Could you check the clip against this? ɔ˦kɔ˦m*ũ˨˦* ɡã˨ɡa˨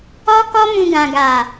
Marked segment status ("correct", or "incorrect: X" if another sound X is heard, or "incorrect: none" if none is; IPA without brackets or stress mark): incorrect: ũ˧